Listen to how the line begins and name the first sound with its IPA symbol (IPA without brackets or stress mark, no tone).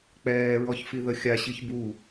k͡p